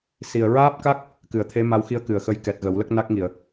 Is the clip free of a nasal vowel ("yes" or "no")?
yes